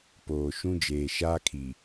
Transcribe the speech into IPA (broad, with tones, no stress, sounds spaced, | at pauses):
p oː˨ ʃ ũ˦ d͡ʒ eː˨ ʃ aː˦ kʰ i˨